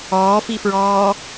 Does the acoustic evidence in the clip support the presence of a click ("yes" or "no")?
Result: no